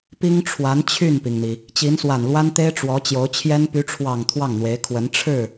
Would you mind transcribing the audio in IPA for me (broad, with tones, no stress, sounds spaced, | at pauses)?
p i˥ ŋ ʈ͡ʂʰ w a˧˥ n t͡ɕʰ y˥˩ n p i˩ ŋ n̪ i˩ | t͡ɕ i˧˥ n s w a˨˩ n l w a˥ n t̪ e˥ ɪ̯ ʈ͡ʂ w ɔ˧˥ t͡ɕ j o˧˥ ʊ̯ t͡ɕʰ j ɛ˥ n p y˧˥ ʈ͡ʂʰ w ɑ˨˩ ŋ t̪ʰ w ɑ˥˩ ŋ n̪ w e˧˥ ɪ̯ kʰ w ə˧˥ n ʈ͡ʂʰ ɻ̩˥˩